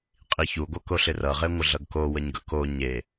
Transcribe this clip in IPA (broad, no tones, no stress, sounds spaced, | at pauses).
qʼ i ç u ɡʷ ʌ k o ɬ ɪ r ʌ ʁ e ŋʷ ə ɮ ʌ ɡ k o w ə ɲ ɡ ʌ k o ɲ e